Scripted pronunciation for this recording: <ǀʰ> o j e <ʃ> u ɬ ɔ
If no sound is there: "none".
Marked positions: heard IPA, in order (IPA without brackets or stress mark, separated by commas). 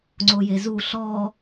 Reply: ŋ͡ǀ, z